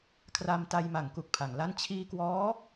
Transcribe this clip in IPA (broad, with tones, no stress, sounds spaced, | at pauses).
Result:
kʰ r a˧ m t a˧ j m a˩˦ ŋ k u˨˩ k̚ pʰ a˩˦ ŋ l a˥˩ n t͡ɕʰ iː˧ k w ɔː˦˥